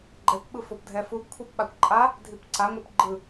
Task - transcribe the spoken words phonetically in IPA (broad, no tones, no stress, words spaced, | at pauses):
ɡ͡ǃɛkʷɓɯfop dʱɛfuɡ kʷʰɛpɓakʷǃʼa | dʱipǀaŋʷɛp ɡ͡ǃɯ